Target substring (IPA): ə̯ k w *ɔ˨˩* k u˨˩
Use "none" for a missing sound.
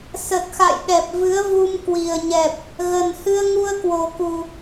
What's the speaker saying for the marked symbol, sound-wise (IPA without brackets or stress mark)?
o˨˩